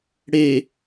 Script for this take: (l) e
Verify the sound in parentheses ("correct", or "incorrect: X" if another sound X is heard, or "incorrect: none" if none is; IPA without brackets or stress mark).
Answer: incorrect: ɽ